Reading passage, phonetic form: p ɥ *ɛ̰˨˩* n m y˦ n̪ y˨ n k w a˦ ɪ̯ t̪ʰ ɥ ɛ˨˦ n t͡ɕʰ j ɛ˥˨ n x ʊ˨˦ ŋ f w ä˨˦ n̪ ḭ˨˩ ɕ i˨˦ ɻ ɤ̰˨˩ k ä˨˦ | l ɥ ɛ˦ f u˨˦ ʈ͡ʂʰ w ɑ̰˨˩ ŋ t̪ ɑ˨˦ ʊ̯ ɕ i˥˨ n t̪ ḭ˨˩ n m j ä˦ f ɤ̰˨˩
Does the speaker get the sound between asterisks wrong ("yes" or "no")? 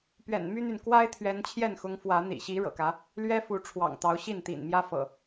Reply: no